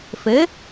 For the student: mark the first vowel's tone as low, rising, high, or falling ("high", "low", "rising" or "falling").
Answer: rising